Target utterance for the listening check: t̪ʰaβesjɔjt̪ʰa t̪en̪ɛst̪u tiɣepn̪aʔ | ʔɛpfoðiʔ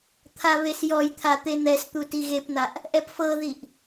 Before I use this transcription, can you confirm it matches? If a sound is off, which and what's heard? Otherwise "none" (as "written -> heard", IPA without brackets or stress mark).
o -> ɤ